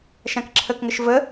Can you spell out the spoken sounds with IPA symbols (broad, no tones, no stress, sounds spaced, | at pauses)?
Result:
ʃ ã k ǁʰ ə k ŋ ə ʃ v ə